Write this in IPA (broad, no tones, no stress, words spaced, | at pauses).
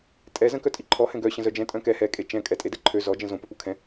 tʼɛ zə̃kœtʼiǃʰɔ hɛ̃ɡœ ɕə̃zœd͡ʒɛ̃ tʼœ̃kɛ hɛ kʼet͡ʃɛ̃ kʼɛtʼedɛǃʰø zɔ d͡ʒə̃zõ pœpukʰɛ̃